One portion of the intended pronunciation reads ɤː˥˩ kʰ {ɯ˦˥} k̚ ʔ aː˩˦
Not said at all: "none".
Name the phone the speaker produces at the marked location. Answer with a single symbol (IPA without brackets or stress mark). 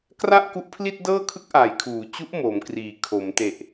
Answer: ɯ˦˥